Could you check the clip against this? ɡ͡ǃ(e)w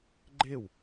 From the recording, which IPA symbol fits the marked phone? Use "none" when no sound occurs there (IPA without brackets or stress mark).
e